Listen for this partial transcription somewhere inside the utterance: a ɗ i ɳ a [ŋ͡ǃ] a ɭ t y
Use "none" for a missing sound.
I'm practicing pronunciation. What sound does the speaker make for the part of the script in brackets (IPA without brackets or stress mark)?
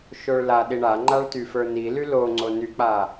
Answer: ŋ͡ǃ